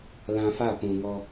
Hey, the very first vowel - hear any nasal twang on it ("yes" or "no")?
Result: yes